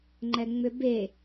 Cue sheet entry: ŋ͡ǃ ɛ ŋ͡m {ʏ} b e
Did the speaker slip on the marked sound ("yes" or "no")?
no